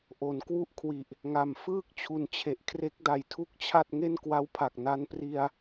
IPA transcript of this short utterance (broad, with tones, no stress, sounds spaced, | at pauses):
ʔ o˩˦ n k w u˥˩ ʔ kʰ w i˨˩ ʔ | ŋ a˨˩ m f ɯː˥˩ k̚ t͡ɕʰ u˨˩ n t͡ɕʰ e˨˩ ʔ kʰ r e˦˥ k̚ d a˨˩ j tʰ u˥˩ k̚ t͡ɕʰ a˥˩ t̚ ŋ e˥˩ n k w a˦˥ w pʰ a˨˩ k̚ n a˧ n p r i˧ a̯